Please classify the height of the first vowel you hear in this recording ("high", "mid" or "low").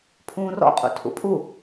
high